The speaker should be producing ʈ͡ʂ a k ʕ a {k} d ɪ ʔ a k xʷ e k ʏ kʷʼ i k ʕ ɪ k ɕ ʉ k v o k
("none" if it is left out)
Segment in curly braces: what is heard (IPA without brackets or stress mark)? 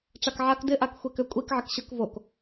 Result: k